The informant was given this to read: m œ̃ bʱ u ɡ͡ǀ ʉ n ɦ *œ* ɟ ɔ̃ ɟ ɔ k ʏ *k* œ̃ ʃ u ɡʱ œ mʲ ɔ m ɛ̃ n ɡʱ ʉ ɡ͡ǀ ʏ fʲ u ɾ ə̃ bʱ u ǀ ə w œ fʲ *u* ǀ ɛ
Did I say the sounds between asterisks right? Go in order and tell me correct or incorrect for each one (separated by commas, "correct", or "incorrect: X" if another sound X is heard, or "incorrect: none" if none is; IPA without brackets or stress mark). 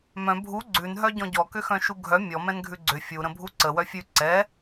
correct, incorrect: x, incorrect: ʉ